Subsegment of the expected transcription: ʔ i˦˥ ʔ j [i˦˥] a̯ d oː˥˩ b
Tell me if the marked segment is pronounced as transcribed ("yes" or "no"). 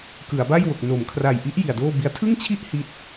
no